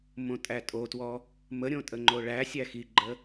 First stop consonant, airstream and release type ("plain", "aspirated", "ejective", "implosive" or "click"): ejective